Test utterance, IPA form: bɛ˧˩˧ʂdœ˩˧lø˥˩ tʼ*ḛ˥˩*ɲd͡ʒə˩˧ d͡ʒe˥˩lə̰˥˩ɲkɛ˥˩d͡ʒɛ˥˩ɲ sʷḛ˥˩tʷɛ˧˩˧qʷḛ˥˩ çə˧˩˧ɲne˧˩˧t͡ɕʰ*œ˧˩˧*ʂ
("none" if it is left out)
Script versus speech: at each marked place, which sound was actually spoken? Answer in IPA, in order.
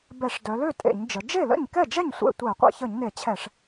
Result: ḛ˧˩˧, ɛ˧˩˧

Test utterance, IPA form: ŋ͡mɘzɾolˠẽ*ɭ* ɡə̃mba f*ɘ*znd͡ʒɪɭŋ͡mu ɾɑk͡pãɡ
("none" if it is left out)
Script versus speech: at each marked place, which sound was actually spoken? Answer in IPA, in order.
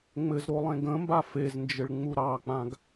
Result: none, e

